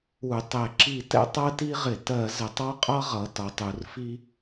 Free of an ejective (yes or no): no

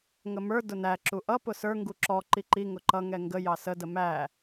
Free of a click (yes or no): no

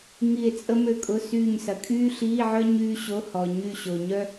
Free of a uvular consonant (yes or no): yes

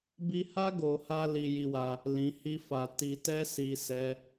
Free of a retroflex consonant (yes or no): yes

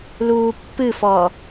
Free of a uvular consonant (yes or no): yes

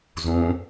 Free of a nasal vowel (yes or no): no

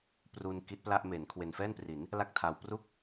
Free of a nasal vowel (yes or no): yes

